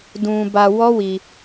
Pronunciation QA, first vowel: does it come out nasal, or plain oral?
nasal